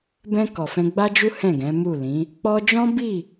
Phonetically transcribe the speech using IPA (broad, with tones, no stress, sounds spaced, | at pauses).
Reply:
b ɛ̃˧ k ɔ˨ f ɛ̃˧ ɡ͡b a˦ d͡ʒ u˦ h ɛ̃˦˨ ɡ ɛ̃˨˦ m u˦˨ l ĩ˨˦ | k͡p ɔ˧ d͡ʒ ɔ̃˦ b i˦˨